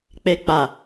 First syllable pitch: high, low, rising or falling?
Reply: low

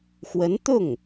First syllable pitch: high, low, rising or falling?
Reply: rising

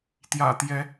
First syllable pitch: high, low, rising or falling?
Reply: low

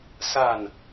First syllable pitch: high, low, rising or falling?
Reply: falling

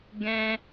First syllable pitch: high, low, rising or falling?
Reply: high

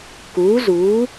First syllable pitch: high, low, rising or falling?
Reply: rising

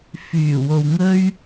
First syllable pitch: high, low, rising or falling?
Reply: low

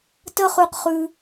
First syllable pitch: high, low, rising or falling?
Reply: high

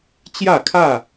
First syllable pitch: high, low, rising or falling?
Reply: falling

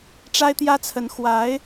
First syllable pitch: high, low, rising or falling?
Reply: high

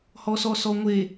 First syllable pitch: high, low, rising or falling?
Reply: low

